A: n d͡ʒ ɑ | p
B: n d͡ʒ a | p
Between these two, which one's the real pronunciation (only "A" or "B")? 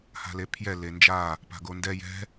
B